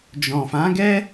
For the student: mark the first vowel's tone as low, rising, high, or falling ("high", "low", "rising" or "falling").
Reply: low